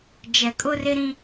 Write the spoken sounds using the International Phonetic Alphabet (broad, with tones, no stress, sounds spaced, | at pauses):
d͡ʒ ɛ˨ kʼ ʊ˦ r ɪ˦ ɾ ĩ˦